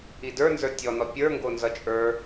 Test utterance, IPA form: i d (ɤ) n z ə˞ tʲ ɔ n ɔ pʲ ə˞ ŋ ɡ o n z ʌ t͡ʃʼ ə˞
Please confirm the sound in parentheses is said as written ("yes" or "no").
no